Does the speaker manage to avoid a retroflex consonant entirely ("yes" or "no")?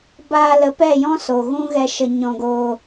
yes